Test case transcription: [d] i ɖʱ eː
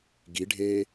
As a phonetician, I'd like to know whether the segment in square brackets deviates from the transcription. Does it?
yes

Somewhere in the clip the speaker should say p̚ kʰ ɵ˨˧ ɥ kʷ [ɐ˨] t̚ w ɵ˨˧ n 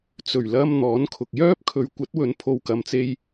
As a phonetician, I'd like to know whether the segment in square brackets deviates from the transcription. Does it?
yes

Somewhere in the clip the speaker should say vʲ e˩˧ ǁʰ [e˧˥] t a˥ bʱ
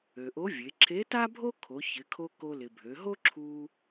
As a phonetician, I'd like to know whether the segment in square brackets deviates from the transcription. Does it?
no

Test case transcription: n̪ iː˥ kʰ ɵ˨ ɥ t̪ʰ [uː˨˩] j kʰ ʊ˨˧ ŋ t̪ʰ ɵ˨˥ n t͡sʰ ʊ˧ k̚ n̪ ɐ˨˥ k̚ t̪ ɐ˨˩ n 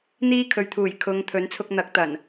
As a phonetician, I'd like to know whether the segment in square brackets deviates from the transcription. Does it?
no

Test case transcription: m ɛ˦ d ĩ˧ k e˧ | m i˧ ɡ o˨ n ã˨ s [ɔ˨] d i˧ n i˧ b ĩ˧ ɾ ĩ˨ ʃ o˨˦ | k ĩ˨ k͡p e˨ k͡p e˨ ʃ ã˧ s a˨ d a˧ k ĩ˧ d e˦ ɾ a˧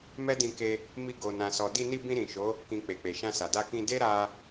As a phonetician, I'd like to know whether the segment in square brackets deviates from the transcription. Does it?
no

